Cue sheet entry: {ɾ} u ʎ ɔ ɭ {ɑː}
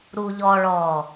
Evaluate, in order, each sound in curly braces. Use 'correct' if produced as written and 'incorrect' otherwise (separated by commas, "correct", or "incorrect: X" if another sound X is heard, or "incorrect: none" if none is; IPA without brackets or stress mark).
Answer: correct, incorrect: ɔː